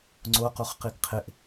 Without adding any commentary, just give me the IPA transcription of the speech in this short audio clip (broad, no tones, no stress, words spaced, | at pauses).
ŋ͡ǀoquχqiɡ qʰɪʔ